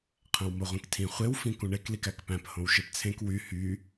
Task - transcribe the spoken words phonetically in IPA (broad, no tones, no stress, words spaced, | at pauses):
qʰæ̃wmoʁʷĩktʰĩ χʷewfĩ kũɳeklik ækpæ̃p hõwʃept͡sʰẽk wy hy